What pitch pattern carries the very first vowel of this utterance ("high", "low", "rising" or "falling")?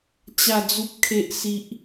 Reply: low